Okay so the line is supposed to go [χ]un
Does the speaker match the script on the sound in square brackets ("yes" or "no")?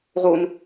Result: no